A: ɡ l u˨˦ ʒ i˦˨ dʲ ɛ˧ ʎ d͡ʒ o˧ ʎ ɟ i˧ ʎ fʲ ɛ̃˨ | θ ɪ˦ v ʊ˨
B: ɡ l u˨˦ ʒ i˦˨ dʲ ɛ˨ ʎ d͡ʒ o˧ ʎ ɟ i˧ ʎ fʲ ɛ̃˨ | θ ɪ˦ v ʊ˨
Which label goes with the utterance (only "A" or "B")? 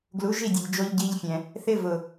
B